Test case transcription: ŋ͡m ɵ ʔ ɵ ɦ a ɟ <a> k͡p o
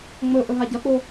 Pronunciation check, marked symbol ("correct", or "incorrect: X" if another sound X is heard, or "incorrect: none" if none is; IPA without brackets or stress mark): incorrect: ɐ